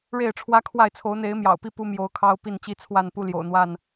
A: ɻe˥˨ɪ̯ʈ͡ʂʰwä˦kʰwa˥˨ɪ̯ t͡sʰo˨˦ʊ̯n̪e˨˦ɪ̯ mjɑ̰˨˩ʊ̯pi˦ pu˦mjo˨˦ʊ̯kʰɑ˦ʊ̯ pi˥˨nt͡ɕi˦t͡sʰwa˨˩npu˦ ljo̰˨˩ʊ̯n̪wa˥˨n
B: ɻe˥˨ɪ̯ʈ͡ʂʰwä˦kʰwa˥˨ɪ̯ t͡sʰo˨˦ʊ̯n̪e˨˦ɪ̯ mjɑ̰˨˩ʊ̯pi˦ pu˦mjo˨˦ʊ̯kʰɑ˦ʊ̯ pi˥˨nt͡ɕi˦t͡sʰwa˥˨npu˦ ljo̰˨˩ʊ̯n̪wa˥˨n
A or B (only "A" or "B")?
B